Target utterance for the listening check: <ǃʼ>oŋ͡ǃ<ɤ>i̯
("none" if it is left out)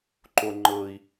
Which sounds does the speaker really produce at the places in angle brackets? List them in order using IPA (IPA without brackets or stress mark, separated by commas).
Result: ǃ, ɤ